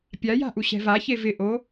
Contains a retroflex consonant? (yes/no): no